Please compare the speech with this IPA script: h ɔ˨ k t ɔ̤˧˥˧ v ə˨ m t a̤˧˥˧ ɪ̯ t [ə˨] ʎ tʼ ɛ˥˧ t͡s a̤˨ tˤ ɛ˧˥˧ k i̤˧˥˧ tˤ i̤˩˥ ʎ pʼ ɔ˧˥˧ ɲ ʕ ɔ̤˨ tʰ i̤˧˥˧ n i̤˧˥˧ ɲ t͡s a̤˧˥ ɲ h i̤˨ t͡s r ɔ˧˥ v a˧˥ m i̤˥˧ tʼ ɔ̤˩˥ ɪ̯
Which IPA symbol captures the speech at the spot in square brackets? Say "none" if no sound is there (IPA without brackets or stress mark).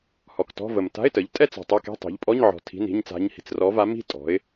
ə˩˥